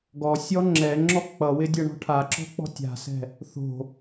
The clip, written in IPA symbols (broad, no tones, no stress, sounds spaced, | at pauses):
ɡ ɔ sʲ ɔ ŋ͡ǁ ɛ ŋ͡ǁ ɔ k͡p ʌ w ɪ dʲ ʌ ɳ ɔ̤ ʈʰ a ǁ ɔ̤ k͡p ɔ̤ tʲ a̤ s ɛ̤ | θ o̤